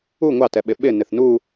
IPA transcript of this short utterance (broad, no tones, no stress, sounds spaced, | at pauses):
u ŋʷ ɑ t ɛ ɓ ɪ ɓ ɪ n ɪ θ n u